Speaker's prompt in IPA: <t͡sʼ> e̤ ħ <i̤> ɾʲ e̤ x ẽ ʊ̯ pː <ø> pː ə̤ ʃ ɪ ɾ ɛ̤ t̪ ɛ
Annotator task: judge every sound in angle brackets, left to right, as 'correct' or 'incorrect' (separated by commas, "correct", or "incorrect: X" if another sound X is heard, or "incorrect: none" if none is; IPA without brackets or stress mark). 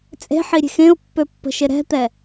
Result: correct, incorrect: i, correct